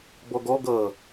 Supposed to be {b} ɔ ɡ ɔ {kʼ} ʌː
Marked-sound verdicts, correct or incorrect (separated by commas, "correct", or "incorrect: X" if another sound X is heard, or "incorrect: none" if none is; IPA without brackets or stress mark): correct, incorrect: ɡ